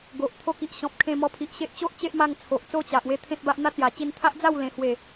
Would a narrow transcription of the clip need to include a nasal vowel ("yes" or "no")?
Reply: yes